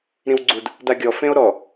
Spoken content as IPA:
ɾ ĩ w ɡ͡ǀ u d | d a ɡʲ ɔ f ẽ o̯ ɾ ɔ

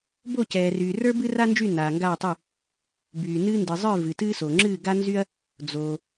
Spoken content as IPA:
b o˥˨ c ɛː˨ r yː˨ r ə˞˥ b ɨ˥ r a˥ n d͡ʒ y˥˨ n aː˨ ŋ ɡ aː˥˨ tˤ y˥˨ | b yː˨ n ɨː˥ n d ɨ˨ zˤ ə˞˥˨ v ɨ˨ t ɨː˥ s o˨ ŋ͡ǁ ɨː˥˨ ɡ a˥ n z y˥ ɐ̯ | d͡z oː˨

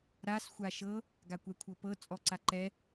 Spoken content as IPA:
ɾ a s xʷ a ʃ ɤ | ɡ a kʷ ɛ kʷʰ ɤ p ɤ t͡sʼ ɔ ǀ a ǃ ɛ

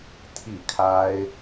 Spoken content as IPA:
t̪ʰ i˥˩ kʰ a˥ ɪ̯

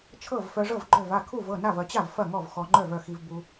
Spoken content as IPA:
t͡ʃʰ ɤ˥˩ v f œ˧ ʐ ɤ˥˩ v ɡ͡ǃ œ˥˩ v a˥˩ kʰ u˥˩ v ɤ˥˩ n a˥˩ v ɐ˧ t͡ɕ a˥˩ v f ɐ˥˩ ŋ ɔ˥˩ v x ɔ˧ ŋ͡ǃ œ˥˩ v œ˥˩ x i˧ v b u˧

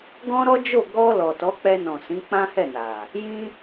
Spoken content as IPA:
ɡ ɔ̃˦ ɾ ɔ˦ d͡ʒ o˦˨ ɡ ɔ˧ l ɔ˨ t ɔ˨˦ k͡p ɛ˧ n ɔ̃˨ s ĩ˨˦ k͡p ã˦ h ɛ˦˨ n a˨ | j ĩ˧

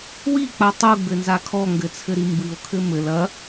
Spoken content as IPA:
w i k͡p a tˤ u ɡ͡b ɘ n z a kʰ ɔ ŋ ɡ ɘ t͡sʰ ɘ ɾ i m b ɨ o̯ kʰ ɘ m ɘ l ɐ

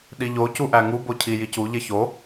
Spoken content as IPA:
ɗ i ʎ o c u ʔ æ ŋ u b o cʰ i j i c u ʎ e ç o

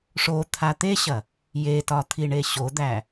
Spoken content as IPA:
ʂ o t̪ʰ a t̪ e ɕ ɐ | j e t ɒ t̪ʰ i ɳ e ɕ o d̪ æ

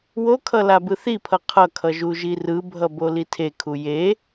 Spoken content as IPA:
w o kʰ ʌ l a b ɯ θ i pʰ ʌ qʰ ʌ kʰ ʌ ʒ u ʒ i r ɯ bʱ ʌ b o l i tʰ e kʰ u j e

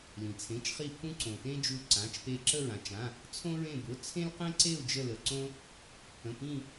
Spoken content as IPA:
l ĩ˩ t͡sʰ ẽ˩˧˩ t͡ʃ χ i˦˨ pʰ ũ˦ ǀ õ˩ t ẽ˦ d͡ʒ u˦˨ ǀ ã˩˧˩ t͡ʃ p e˦˨ ǁ ə˦˨ ɹ ã˩ t͡ʃ ã˩˧˩ | t͡sʰ õ˦ ɹ ẽ˦˨ b ʊ˩˧˩ t͡sʰ ẽ˦ l q ẽ˦ ǀ e˦˨ u̯ d͡ʒ ə˦˨ l ə˩˧˩ ǀ õ˦ | pʰ ə̃˩˧˩ p ĩ˦˨

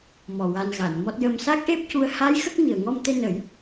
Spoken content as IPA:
m ɔ˨˩ w a˧ n ɣ a˨˩˨ n m ɔ˦˥ t̚ j ə˧ m s a˦˥ k̚ ʔ e˦˥ p̚ c u˧˥ ə̯ h a˧˥ j x ə˦˥ k̚ m i˨˩ ə̯ ŋ ɔ˧ m t̪ e˧ n ə˨˩˦ j

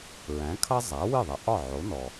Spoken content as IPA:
ɹ æ̃˩˥ kʰ ʌ˥ zˤ æ˩˥ w ɨ˥˩ ðˤ ʌ˩˥ ʔ ɒ˥˩ ʕ o˩˥ n ɔ˩

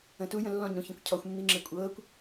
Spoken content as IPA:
ə̃ t u j ə̃ lː ɔ̃ ɲ ɾ ũ ç ə̃ kʷ cʰ ɔ xʷ mː i ŋ͡ǁ e kʷʼ ɤː kʷ

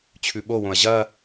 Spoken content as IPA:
t͡ɕʰ ʉ ɓ o w õ ɐ̯ ʑ ɐ

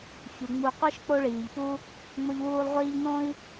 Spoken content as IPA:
ç u˩ ŋ͡m u˨ qʷ ɨ˦ ʃ k͡p o˦ ɭ iː˩ ʎ p u˦ | ŋ͡m o˦ ʎ w uː˦ lˠ ʁʷ iː˥ ʎ n õ˥ i̯

